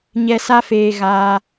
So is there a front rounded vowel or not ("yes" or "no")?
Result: no